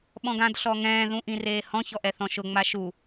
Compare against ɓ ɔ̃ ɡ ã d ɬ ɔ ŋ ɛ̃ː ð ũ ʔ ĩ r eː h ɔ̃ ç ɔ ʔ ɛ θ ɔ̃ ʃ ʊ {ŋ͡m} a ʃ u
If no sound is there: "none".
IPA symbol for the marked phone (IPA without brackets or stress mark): ŋ͡m